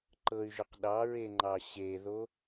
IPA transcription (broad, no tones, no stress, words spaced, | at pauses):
ǃɤy̯ʒʏq ɗɑɹeŋ͡ǃɑ ɕeðo